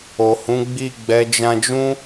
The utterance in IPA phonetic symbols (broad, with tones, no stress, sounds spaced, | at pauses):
o˨ h ũ˨˦ ɡ͡b i˦˨ ɡ͡b ɛ˨˦ d͡ʒ ã˧ d͡ʒ ũ˦